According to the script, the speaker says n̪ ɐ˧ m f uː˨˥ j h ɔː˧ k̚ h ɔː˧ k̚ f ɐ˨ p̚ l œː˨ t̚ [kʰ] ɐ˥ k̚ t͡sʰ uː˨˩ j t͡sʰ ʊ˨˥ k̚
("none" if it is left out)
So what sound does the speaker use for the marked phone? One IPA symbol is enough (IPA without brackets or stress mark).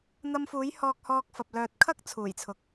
kʰ